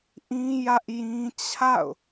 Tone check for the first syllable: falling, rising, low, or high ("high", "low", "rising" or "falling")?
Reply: high